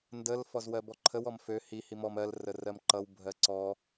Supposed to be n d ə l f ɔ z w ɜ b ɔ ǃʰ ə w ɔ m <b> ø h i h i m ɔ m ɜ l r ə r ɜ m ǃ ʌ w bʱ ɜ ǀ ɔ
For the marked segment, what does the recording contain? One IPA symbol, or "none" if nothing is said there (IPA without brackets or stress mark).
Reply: f